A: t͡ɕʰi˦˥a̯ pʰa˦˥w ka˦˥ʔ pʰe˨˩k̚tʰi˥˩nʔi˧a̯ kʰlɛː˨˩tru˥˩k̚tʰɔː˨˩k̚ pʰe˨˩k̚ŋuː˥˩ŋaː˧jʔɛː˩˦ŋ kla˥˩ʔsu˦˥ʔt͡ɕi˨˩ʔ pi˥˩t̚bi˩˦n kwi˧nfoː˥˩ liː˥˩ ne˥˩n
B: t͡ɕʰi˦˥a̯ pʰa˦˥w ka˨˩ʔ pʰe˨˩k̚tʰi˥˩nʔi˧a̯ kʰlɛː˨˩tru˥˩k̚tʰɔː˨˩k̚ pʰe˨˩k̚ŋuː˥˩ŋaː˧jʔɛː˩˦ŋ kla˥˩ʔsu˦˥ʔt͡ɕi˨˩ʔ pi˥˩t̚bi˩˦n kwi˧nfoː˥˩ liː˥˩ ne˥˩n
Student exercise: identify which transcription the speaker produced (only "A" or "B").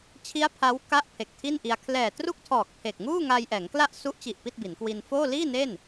A